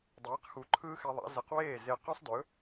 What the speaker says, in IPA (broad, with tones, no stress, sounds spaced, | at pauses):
dˤ eː˩˥ q x u˩˥ ǃʰ ɯː˥ x ɛ˧ ðˤ a̰˩˥ z ə˩˥ q w eː˥˩ z e˧ q œ˥ sˤ d ɵ˩˥